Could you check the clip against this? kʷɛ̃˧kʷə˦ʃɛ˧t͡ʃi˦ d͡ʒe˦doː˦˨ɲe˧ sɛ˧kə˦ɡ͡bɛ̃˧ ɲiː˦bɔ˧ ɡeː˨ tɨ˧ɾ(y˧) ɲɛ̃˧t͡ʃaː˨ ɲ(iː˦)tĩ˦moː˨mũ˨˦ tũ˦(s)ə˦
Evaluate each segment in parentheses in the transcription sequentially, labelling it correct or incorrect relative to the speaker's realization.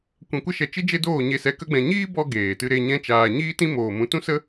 incorrect, correct, correct

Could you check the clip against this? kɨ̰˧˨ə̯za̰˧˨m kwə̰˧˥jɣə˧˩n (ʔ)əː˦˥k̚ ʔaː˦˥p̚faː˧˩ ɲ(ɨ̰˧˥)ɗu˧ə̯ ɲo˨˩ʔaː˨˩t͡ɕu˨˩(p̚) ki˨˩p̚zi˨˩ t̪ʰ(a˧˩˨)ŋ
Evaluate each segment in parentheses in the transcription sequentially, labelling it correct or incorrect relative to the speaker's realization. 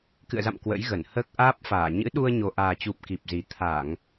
incorrect, correct, correct, correct

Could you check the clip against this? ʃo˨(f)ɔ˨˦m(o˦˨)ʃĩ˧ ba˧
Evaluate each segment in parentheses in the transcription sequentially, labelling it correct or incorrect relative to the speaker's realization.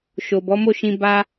incorrect, correct

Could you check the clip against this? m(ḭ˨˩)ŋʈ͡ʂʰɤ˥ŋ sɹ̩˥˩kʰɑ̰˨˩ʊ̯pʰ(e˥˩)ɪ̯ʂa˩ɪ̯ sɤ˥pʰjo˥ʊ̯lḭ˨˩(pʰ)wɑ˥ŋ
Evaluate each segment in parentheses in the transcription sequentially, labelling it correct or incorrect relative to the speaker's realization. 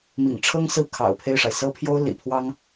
correct, correct, correct

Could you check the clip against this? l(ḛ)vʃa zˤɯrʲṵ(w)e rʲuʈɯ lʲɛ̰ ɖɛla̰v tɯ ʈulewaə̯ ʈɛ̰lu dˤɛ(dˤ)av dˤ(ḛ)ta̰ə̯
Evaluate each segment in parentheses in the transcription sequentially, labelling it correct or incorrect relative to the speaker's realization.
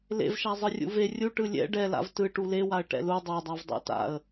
correct, incorrect, correct, incorrect

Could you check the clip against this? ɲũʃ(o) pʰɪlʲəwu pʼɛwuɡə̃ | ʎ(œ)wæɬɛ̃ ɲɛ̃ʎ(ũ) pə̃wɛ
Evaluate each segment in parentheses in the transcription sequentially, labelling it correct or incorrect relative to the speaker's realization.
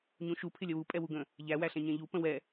incorrect, incorrect, incorrect

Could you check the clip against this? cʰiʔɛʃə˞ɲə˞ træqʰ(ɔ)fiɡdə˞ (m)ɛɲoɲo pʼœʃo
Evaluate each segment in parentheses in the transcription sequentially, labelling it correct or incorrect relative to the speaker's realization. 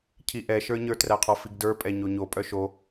correct, incorrect

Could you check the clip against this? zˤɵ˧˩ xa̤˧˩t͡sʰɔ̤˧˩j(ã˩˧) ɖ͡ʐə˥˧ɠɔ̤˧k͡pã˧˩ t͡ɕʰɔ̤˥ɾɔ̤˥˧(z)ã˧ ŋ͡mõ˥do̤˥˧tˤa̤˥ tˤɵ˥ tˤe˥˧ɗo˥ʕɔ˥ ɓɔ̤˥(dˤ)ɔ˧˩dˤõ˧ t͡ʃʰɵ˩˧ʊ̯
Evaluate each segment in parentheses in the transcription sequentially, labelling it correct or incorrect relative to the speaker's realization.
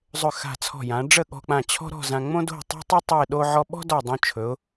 correct, correct, incorrect

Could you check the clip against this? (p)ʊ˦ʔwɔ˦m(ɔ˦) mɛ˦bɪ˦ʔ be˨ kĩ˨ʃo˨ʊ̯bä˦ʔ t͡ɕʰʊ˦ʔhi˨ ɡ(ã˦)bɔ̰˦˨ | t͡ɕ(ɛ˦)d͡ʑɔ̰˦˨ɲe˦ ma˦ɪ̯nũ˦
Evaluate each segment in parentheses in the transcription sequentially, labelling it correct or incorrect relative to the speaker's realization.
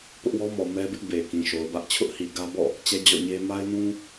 correct, incorrect, incorrect, correct

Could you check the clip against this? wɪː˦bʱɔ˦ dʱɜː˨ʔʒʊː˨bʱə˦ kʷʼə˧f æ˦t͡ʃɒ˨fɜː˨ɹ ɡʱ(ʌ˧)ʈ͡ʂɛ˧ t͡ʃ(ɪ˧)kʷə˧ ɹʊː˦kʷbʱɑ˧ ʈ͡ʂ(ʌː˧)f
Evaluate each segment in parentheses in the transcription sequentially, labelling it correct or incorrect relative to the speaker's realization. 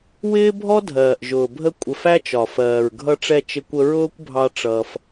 correct, correct, correct

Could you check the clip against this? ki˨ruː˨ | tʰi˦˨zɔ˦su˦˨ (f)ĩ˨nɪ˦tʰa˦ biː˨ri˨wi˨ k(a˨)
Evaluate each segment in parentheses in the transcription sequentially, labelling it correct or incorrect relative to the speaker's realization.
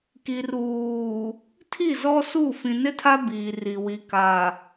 correct, correct

